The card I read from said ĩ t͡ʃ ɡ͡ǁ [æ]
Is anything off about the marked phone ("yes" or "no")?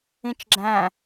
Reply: yes